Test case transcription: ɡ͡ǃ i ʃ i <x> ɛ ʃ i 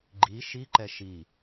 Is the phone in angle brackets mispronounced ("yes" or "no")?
yes